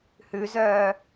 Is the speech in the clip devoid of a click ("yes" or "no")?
yes